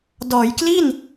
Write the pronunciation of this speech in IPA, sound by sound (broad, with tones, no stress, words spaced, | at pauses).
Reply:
dɔː˩˦jkli˥˩n